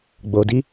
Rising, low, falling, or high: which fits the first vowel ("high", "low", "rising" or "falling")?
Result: low